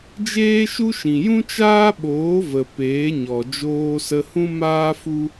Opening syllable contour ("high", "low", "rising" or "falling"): high